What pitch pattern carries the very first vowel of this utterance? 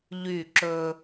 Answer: falling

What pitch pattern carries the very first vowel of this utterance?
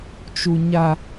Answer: high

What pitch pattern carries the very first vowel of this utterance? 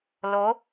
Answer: rising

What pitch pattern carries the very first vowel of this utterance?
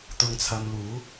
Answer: low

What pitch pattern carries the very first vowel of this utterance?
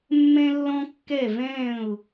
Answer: high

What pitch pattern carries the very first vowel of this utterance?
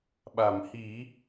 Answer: low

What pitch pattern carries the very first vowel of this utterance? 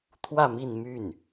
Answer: falling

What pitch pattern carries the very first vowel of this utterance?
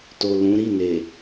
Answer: low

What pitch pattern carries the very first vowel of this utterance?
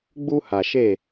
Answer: high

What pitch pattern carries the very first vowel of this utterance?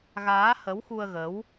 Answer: rising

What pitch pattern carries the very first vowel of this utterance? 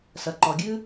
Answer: low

